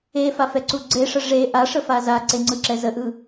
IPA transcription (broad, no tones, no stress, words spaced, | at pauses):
efafɛǀu ɡ͡ǀeʂə ʐe ʔaʂəfa zaǀeŋ͡ǀɯǁɛ zəʔɯ